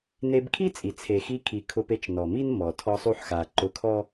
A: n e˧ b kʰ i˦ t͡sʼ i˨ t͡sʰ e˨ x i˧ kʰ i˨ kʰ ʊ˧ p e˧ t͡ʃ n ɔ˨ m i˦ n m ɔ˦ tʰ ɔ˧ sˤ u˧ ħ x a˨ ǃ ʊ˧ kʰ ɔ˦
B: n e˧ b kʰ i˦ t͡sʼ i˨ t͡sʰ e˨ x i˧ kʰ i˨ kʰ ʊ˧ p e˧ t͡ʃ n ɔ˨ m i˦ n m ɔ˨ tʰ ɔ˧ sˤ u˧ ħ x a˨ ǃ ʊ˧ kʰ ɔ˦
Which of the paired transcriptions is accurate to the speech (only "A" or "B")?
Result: B